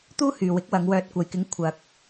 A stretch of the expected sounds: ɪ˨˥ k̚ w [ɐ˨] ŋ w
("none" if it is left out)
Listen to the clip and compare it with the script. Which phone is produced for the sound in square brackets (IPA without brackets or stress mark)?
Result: ɐ˨˧